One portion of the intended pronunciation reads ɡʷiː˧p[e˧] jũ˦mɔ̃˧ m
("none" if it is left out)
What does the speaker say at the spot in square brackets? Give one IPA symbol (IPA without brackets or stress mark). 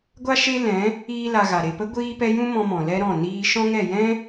ɛ˧